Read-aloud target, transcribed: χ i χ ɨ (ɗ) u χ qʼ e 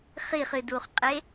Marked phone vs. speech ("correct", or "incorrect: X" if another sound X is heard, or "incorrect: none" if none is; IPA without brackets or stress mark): incorrect: d